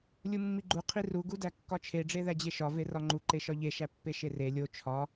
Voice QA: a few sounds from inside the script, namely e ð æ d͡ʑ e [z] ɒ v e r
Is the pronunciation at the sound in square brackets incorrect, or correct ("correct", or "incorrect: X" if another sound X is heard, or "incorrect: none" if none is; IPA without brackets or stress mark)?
incorrect: ʃ